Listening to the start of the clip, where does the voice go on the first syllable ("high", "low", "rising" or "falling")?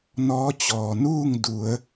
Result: rising